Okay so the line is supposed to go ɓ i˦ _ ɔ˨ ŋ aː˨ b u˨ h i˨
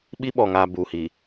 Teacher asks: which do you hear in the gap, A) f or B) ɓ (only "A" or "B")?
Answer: B